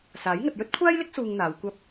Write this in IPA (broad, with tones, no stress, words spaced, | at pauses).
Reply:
saː˨˥j ŋɐ˨t̚jɵ˥t̚kʷʰaː˥jlɪ˥k̚ suː˧ŋn̪aː˨˧wkʷɐ˥p̚